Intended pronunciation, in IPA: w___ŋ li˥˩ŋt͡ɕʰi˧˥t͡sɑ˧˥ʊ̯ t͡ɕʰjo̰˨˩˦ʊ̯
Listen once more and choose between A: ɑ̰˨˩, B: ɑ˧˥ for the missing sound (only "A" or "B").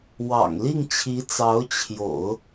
A